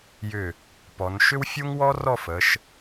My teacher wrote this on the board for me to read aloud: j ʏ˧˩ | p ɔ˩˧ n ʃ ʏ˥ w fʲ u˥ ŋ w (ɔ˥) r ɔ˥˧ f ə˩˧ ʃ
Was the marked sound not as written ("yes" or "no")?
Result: no